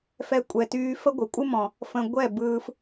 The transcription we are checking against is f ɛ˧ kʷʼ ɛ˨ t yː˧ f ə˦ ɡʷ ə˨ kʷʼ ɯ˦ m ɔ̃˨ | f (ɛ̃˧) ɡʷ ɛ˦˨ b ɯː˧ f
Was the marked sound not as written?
yes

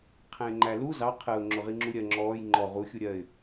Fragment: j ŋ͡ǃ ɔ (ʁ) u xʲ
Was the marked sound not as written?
no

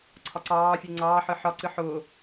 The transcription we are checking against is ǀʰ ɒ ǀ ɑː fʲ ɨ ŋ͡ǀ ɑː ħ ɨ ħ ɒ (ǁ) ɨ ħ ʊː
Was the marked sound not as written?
yes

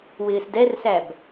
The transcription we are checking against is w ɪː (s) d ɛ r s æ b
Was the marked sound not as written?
no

